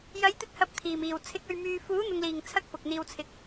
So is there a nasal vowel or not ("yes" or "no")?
no